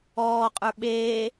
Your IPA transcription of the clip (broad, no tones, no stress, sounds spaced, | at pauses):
ɔː qʼ ə˞ ɓ eː